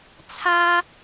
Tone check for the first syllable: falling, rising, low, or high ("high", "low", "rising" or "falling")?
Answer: high